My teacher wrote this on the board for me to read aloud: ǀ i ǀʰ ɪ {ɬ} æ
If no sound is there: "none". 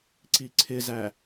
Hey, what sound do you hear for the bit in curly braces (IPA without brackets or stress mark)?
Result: z